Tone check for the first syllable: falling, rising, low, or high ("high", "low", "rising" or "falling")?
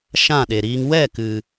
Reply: falling